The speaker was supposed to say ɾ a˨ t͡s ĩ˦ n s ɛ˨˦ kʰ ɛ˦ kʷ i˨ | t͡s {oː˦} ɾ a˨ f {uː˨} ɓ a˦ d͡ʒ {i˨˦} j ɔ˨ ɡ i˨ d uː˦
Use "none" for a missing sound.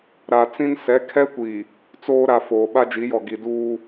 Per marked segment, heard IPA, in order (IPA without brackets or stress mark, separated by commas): oː˦, oː˨, i˨˦